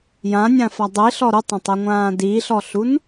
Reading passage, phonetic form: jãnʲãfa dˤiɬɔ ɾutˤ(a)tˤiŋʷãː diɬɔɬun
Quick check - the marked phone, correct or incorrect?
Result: incorrect